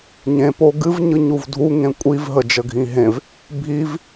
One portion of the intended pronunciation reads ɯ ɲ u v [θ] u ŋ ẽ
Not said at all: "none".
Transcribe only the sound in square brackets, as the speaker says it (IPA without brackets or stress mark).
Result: dʱ